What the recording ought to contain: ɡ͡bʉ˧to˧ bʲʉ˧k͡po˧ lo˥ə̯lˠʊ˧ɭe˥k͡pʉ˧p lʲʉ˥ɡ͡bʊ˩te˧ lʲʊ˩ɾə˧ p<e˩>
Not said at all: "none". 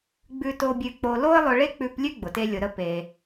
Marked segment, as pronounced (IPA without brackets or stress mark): e˩